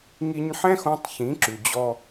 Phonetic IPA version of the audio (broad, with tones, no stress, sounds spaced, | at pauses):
ŋ i˧ ɲ ħ ɛ̃˥ x õ˧ tˤ ç ĩ˩˥ ǁ ʉ˩ d͡ʑ ɔ˧